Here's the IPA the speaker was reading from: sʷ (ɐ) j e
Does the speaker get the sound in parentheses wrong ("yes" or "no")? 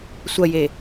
no